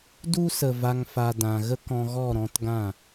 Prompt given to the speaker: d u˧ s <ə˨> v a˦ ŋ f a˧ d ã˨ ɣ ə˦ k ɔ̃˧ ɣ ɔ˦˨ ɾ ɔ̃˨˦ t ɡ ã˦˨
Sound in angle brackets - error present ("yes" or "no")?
no